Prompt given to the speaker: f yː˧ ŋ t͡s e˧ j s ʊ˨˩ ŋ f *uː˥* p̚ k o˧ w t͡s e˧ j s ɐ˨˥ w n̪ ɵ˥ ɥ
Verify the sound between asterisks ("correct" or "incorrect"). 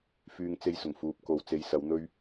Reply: incorrect